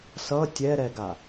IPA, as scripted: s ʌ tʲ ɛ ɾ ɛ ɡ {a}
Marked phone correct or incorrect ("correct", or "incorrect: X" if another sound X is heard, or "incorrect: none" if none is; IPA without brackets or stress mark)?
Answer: correct